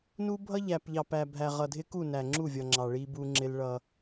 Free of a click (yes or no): no